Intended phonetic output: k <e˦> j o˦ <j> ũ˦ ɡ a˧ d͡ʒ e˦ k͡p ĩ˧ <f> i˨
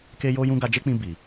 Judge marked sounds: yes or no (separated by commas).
yes, yes, no